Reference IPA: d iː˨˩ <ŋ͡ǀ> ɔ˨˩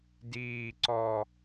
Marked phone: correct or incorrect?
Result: incorrect